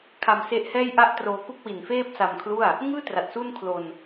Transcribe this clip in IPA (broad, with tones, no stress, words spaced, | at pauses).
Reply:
kʰa˧mse˦˥ʔhɛː˥˩jʔa˥˩ʔ troː˧ku˥˩k̚wi˨˩nfeː˥˩p̚ sa˧mkʰlu˥˩a̯ | ŋɯː˥˩ tra˨˩t̚su˥˩nkʰlo˧n